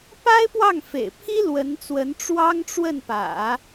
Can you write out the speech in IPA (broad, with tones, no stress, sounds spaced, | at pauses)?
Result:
p a˥ ɪ̯ p w ɑ˥˩ ŋ f ḛ˨˩ ɪ̯ pʰ i˥ l w ə˧˥ n t͡s w ə˧˥ n ʈ͡ʂ w ɑ˥ ŋ ʈ͡ʂ w ə˥˩ n p ä̰˨˩˦